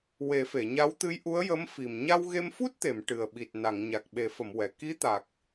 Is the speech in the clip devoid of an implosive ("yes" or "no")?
no